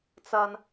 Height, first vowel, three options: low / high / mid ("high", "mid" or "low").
low